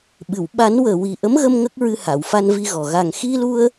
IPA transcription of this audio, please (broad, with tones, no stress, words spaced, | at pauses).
ɓɨ˨˩˨w ɓa˨˩˦nwəː˨˩wi˨˩ ʔə˧˥mɣə˧m ŋə˦˥k̚ɹɨ˧ ha˨˩˨wfa˧n vi˧ɣɔ˨˩ ɣa˨˩ŋxi˧lu˧ə̯